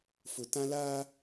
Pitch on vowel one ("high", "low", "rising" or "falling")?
low